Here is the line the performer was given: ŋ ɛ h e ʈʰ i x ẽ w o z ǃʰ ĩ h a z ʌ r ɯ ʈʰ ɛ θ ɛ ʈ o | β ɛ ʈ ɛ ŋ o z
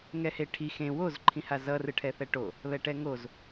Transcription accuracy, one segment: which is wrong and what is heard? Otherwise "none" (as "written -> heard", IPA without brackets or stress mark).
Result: none